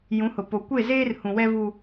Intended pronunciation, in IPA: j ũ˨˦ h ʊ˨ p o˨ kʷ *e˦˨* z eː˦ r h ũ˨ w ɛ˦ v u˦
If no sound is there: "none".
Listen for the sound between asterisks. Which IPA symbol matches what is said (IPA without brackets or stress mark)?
e˦˨